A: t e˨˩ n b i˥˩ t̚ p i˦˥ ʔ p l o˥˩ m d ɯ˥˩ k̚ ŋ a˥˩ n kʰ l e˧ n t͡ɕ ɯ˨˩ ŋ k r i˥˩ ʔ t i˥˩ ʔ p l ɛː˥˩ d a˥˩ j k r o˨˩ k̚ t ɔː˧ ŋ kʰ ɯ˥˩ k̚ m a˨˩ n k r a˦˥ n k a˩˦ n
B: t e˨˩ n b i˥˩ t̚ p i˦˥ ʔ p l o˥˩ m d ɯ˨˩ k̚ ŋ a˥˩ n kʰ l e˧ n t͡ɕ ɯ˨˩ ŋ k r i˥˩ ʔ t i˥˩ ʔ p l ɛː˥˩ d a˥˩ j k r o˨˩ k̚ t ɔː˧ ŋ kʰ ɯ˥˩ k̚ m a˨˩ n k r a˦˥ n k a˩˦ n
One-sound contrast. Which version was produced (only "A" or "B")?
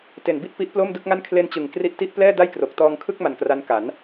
A